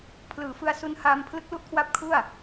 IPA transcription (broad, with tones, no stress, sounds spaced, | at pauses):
pʰ l ɯː˩˦ f ɯ˧ a̯ s u˧ n h aː˧ m pʰ l ɯ˦˥ k̚ l u˦˥ ʔ kʰ w a˦˥ p̚ kʰ u˥˩ a̯